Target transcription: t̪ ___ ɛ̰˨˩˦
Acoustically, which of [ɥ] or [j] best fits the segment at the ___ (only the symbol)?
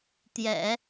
j